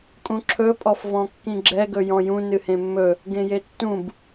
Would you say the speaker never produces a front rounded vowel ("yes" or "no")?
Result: yes